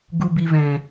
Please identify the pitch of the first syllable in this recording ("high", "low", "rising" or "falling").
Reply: low